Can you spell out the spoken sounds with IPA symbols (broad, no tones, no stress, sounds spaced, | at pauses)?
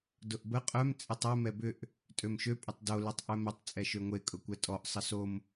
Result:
d ʊ ʔ b ə qʼ œ m t͡sʼ ɪ tˤ e m ɛ b ʏ ʔ | tʼ ø m ʃ ø pʼ ɪ tˤ d o l y tˤ ʔ œ m ɪ tˤ t͡sʼ ɛ ʃ ø ŋʷ e kʼ ʊ kʷ ɛ tʼ ɔ ʔ sˤ ə s o m